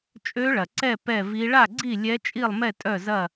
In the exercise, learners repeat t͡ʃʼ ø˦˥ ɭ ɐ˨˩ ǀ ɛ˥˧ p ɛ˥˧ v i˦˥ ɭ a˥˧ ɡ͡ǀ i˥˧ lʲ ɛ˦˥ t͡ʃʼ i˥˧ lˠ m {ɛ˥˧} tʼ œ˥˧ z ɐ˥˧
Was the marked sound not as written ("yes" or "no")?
no